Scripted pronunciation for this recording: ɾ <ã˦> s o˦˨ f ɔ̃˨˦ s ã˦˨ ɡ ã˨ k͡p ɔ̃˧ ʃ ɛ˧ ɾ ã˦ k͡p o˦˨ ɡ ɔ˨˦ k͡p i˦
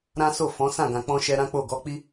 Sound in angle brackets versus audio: correct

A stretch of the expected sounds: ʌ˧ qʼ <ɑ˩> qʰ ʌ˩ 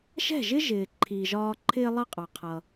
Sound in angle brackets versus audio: correct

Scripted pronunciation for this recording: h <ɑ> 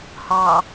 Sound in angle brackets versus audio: correct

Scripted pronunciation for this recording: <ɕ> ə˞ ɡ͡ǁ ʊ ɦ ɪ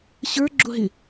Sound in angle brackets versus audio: correct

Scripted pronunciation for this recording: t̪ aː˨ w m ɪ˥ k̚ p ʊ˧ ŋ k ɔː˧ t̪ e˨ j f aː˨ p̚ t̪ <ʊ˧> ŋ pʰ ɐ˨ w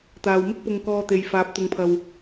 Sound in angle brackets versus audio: incorrect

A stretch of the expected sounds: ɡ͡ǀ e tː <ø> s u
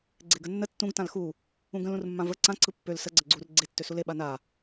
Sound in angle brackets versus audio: correct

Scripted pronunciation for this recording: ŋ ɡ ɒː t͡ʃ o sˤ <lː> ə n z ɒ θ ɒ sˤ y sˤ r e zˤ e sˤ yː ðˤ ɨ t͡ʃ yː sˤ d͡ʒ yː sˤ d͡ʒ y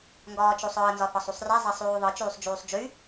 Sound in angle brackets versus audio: incorrect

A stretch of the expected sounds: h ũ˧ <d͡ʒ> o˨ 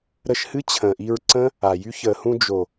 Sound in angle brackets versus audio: correct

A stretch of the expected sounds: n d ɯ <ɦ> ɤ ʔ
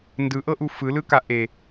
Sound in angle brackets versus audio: incorrect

